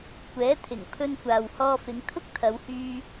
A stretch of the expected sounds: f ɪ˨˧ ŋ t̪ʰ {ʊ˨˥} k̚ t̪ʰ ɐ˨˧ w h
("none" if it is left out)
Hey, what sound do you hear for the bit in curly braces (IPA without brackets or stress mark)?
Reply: ʊ˥